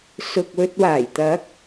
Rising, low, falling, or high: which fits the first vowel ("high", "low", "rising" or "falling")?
low